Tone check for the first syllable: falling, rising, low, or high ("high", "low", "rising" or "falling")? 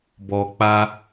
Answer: low